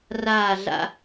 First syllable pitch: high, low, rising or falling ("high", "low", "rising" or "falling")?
falling